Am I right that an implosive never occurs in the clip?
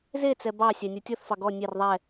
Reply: yes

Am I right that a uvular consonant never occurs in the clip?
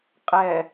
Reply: no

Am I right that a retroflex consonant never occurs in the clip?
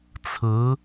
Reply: yes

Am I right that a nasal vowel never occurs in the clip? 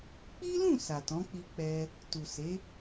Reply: no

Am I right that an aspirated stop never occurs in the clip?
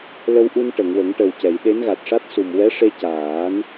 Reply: yes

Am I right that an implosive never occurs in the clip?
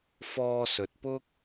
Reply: yes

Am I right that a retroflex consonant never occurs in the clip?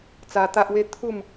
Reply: yes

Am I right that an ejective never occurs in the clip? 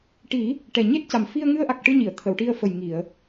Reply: yes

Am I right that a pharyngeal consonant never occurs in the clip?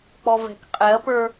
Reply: yes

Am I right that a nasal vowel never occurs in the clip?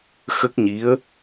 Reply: yes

